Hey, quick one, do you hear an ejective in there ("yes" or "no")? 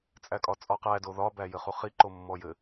yes